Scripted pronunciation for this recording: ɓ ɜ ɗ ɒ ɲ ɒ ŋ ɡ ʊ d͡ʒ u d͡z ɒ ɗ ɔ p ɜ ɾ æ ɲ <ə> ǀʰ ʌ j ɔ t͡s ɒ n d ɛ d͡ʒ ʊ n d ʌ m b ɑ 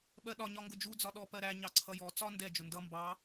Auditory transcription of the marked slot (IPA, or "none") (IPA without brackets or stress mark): ɑ